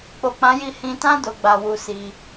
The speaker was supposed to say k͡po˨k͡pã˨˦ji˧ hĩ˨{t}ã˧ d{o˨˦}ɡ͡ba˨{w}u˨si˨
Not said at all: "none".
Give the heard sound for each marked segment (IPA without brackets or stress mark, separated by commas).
t, o˨, w